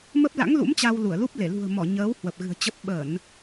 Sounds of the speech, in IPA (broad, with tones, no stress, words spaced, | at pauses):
mə˦˥p̚la̰˧˥ŋlṵ˧˥m t͡ɕa˧w lu˧˩ə̯lu˦˥p̚ le˧˩ lṳ˨˩ə̯mɔ˧˩ ɲəː˨˦w hwə˨˩p̚ɣɨ̤˨˩ə̯t͡ɕə˦˥p̚ ɓə˧˩˨n